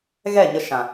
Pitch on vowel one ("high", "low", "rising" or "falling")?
falling